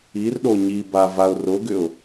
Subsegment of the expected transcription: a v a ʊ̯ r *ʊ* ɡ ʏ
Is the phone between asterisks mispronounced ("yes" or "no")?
no